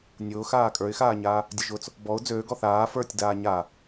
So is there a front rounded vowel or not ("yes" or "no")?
yes